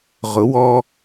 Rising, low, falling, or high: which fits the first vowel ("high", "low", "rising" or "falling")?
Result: rising